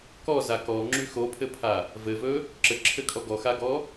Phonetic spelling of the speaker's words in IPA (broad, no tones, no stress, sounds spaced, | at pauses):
k ɔ z a k ɔ ŋ͡ǁ y x o pʰ ɘ pʰ a | v ɘ v ɵ | ǁ ɘ ǁʰ ɘ kʼ ɔ ɡ ɔ x a ɡ ɔ